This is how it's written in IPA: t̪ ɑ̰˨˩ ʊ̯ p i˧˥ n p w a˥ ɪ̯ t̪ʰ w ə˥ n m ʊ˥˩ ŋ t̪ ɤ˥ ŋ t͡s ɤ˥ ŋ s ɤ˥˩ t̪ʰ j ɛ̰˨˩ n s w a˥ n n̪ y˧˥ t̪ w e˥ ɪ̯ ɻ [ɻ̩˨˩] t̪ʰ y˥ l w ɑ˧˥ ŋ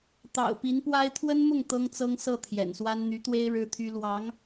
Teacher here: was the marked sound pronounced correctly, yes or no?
no